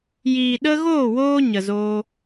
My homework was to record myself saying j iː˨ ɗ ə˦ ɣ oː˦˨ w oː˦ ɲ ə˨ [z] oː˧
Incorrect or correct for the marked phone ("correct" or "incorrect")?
correct